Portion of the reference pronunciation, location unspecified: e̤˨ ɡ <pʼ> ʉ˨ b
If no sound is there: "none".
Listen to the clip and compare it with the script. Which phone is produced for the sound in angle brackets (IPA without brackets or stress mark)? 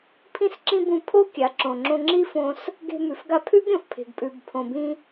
pʼ